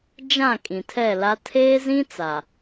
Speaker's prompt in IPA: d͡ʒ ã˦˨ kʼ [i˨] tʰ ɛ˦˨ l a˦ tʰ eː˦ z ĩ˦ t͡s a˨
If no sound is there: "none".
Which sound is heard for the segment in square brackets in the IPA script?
ĩ˨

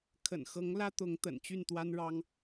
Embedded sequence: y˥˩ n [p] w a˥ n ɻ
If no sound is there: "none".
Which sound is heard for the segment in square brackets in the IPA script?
t̪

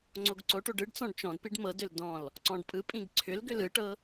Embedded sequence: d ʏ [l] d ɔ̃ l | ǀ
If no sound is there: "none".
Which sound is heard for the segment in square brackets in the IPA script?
l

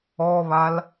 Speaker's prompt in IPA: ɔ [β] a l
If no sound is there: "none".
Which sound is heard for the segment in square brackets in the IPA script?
β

